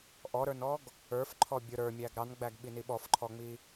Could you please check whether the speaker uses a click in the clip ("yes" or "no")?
yes